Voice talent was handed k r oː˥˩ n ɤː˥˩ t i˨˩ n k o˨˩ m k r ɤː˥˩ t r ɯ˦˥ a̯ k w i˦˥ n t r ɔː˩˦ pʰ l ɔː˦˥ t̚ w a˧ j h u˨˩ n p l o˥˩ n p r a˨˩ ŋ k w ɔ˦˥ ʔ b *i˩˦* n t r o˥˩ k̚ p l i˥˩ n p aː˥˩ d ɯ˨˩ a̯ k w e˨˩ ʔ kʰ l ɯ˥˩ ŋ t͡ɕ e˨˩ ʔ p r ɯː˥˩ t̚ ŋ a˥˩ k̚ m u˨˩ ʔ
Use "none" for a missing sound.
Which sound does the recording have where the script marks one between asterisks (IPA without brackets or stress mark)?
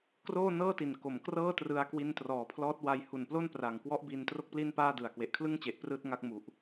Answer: i˧